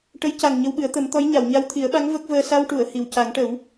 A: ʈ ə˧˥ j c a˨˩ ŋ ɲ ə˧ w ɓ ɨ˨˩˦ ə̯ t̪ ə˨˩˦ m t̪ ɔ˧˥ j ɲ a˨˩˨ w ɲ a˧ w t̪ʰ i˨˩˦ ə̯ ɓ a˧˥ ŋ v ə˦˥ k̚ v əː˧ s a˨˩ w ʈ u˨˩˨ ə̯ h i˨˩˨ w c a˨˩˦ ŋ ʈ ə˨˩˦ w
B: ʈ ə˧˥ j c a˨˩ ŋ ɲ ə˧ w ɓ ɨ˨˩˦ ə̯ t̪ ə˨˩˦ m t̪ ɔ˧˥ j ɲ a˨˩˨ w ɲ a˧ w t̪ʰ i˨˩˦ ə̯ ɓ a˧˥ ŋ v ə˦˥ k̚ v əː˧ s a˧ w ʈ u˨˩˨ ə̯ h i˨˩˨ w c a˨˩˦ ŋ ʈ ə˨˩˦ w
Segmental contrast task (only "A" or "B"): B